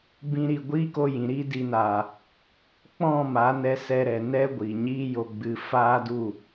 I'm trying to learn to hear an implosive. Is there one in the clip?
no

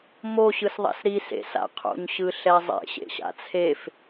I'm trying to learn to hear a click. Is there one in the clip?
no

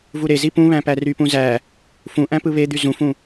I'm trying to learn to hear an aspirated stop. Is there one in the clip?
no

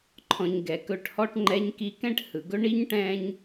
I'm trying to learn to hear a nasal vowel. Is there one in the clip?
yes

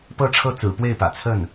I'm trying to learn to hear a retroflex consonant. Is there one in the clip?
yes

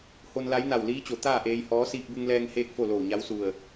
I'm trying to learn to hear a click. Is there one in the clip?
no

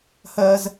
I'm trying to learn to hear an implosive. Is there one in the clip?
no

